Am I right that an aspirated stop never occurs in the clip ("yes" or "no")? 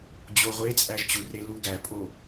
yes